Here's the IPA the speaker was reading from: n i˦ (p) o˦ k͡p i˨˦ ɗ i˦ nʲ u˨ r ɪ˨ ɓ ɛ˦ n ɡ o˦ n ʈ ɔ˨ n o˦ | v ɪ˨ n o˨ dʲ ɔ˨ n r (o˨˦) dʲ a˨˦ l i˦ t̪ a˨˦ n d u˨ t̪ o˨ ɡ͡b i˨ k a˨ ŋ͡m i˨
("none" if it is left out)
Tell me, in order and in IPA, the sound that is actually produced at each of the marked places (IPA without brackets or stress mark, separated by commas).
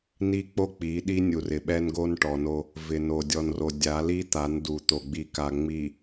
k͡p, o˨